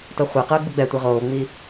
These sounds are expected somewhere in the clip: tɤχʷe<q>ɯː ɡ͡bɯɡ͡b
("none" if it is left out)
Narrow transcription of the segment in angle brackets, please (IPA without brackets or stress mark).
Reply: q